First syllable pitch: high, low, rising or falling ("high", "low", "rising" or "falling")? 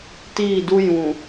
falling